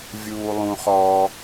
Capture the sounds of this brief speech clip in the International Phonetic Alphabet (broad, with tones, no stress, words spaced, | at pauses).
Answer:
vʲuː˧lˠũ˧χɔː˧